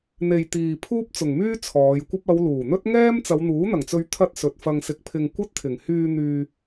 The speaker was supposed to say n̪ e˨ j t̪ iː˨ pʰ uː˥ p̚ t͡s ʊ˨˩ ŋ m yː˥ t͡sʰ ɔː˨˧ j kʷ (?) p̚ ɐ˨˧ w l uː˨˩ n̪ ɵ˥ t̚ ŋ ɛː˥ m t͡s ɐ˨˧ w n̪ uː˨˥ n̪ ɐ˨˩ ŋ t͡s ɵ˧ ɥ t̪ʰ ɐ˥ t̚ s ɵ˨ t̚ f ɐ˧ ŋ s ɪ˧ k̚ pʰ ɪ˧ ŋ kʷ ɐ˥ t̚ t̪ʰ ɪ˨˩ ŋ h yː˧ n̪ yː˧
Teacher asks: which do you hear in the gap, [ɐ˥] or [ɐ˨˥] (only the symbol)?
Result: ɐ˥